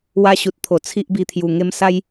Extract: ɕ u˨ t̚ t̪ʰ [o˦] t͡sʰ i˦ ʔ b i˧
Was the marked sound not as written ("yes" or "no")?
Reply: yes